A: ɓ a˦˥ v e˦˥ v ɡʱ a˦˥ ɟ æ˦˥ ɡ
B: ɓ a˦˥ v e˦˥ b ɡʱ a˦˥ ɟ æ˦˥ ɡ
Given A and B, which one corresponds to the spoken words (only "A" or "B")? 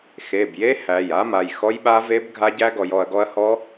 B